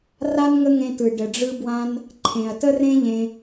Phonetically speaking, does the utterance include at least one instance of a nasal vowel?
yes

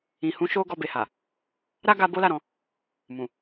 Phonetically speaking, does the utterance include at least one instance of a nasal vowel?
yes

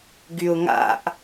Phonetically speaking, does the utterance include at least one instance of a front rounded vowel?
yes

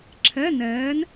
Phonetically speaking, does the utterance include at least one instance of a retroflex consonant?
no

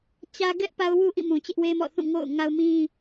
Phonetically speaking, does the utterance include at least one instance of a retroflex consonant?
no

